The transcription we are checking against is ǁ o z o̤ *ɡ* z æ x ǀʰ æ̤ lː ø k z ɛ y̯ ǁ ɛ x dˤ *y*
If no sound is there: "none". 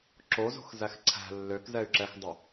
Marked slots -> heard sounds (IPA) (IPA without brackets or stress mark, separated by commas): x, y